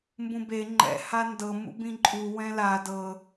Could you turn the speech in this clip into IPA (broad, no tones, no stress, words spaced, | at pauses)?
mbũbe ŋ͡ǃɛ̰ handɤ mṵbĩǃʼu wɛ̃la dɤ